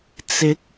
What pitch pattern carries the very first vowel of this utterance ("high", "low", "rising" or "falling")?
rising